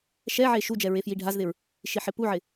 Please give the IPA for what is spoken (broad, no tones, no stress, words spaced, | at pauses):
ʃɛʕe ʃud͡ʒɛ ɹefjiɖʱazðɪɹ | ʃiħɪpuʕɪ